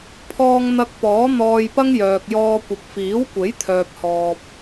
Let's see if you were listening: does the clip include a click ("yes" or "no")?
no